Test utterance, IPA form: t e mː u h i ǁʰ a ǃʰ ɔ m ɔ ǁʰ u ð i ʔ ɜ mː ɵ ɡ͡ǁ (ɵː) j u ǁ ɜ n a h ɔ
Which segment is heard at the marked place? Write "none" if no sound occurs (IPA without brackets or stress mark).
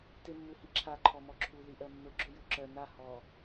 ɵ